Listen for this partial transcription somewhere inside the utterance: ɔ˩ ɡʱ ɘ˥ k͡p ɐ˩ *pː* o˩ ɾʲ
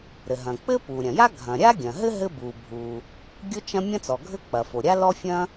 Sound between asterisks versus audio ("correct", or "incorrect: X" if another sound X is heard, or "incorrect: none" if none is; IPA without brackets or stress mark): incorrect: f